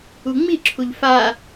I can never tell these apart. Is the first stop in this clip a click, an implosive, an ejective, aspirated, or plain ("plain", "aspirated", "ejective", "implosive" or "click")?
click